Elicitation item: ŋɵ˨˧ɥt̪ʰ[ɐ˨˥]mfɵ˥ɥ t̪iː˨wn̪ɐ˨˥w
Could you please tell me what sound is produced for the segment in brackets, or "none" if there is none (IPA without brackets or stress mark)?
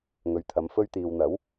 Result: ɐ˨˥